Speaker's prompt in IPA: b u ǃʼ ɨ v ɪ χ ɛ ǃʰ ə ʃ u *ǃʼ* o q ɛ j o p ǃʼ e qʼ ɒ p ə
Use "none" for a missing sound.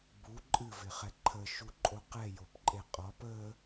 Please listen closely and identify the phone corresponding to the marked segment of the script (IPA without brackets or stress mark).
ǃʼ